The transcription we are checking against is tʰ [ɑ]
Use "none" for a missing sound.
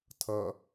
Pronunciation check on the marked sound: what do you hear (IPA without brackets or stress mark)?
ʌ